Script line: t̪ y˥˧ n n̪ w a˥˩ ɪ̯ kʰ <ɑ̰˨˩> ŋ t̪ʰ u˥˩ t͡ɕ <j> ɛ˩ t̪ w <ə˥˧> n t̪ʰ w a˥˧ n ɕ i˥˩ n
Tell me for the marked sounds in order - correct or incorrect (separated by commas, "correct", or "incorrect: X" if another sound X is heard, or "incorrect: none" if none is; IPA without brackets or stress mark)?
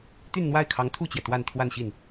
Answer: incorrect: ɑ˧˥, correct, incorrect: a˥˧